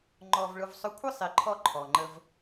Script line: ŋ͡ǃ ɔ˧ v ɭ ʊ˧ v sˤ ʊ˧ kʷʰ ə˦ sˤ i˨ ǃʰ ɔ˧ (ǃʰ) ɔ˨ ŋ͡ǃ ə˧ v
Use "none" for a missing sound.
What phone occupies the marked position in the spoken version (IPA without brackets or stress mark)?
ǃʰ